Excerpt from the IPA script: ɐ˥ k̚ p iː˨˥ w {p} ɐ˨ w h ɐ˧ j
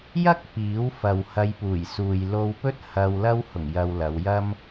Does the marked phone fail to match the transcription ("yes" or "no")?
yes